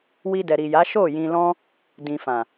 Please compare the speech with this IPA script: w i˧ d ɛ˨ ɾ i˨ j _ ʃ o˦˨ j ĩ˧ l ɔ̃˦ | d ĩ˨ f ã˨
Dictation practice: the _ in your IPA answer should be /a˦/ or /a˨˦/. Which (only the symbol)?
a˨˦